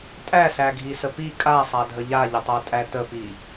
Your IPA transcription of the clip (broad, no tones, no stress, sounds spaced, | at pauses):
tʼ æ s æ ɡʱ i s ə p i kʼ a sˤ a dʱ ə ʎ a ʎ ə tˤ a tʼ æ t ə p i